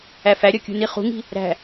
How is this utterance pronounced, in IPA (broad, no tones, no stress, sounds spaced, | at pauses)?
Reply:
æ f æ ɾʲ ɒ kʲ ṳ n i χ ṳ ŋ i̤ | ɾ æ̤